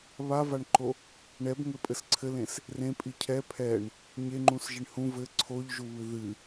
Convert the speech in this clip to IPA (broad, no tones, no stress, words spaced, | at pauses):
βavaɳǃo | ɳɛbŋɘpʼɘs ǀʰɘlẽs | rẽpʼi cʰɛ pʰɛɳ | ɲeŋ͡ǃũsʒiɳ hũ vɘ ǀʰoʎʒuβɨ ðɨ